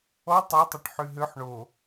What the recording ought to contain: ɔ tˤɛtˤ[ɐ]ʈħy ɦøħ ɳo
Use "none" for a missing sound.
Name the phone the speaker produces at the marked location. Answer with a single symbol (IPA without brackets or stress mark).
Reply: ɐ